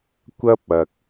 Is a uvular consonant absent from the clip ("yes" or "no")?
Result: yes